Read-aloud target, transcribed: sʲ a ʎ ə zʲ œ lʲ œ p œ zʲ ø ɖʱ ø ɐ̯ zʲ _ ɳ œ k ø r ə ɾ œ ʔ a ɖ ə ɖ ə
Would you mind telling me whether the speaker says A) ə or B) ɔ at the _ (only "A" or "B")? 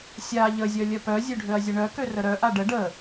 A